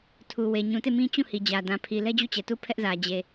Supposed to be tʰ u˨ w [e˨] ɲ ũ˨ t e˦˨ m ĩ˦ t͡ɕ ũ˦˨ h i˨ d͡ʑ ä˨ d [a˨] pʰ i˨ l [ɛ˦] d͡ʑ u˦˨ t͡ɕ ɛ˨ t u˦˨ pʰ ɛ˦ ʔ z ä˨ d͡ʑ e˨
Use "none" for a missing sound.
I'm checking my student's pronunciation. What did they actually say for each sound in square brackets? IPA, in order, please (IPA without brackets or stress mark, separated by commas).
e˨, ã˨, ɛ˦